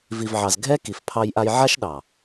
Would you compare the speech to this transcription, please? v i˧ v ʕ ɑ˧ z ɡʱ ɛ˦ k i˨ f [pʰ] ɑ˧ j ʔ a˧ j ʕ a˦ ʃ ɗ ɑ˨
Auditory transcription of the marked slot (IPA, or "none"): pʰ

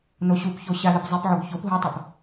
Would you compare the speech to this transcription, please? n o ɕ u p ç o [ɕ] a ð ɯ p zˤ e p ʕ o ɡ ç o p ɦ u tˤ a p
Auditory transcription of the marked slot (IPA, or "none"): ɕ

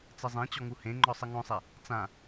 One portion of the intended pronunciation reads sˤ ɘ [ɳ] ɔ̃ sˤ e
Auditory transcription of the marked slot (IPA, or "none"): ŋ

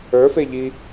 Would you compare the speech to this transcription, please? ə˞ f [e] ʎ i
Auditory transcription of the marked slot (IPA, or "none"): e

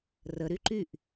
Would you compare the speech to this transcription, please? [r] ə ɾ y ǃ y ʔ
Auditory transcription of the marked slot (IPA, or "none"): r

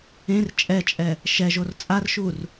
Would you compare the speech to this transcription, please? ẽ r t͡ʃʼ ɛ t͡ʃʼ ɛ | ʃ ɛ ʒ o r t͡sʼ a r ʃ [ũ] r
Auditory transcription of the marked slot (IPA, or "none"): u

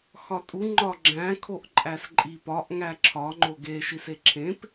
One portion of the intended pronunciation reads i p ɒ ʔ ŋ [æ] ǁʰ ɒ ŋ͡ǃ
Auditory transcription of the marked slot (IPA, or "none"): æ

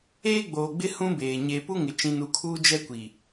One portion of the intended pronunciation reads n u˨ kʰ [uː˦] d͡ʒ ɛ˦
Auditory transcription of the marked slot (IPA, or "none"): uː˦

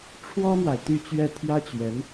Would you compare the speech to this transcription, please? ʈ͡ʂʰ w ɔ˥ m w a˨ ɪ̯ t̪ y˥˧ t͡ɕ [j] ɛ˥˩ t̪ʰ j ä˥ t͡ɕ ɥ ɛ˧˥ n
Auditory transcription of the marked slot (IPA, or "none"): ɥ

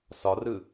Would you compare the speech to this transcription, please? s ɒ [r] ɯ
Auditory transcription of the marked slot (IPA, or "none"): r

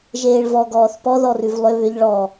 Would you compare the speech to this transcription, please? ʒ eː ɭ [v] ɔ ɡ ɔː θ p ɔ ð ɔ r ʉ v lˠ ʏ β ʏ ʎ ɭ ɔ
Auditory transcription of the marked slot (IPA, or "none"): v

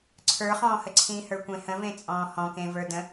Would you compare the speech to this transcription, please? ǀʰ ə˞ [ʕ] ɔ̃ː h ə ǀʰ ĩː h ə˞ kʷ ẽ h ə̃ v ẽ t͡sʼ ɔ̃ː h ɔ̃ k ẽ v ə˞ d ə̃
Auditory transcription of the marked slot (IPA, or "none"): χ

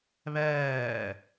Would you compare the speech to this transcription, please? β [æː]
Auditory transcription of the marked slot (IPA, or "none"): æː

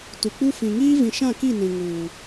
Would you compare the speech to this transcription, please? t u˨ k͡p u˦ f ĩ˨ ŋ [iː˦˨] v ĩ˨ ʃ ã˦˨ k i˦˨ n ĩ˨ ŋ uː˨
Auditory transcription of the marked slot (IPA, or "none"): iː˦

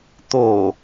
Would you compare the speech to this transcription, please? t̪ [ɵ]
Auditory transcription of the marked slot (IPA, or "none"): o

